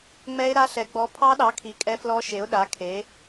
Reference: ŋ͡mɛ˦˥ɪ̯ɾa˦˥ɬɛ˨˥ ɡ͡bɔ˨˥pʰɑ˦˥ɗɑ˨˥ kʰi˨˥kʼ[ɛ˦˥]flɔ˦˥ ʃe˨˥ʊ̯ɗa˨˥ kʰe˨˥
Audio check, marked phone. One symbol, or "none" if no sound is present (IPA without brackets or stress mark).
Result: ɛ˦˥